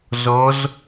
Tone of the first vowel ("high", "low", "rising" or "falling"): rising